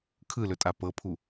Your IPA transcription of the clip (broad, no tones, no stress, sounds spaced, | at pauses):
kʰ ɯ l ɵ tʼ a p ɤ pʰ u